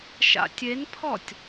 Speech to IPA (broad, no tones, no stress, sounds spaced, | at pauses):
ʃ a̰ tʲ e n pʰ ɔ tʲ